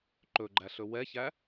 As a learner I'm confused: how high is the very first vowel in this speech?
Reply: mid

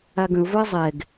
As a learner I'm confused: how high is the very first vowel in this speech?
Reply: low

